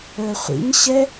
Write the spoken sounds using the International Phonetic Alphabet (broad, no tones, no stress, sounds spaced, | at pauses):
ə˞ χʷ ḭ ɲ ɕ ɛ